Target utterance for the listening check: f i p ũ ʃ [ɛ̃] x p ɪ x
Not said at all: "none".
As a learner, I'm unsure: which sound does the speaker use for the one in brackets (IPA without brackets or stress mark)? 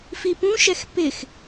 ɛ